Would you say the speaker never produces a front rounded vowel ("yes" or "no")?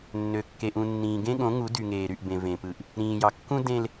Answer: no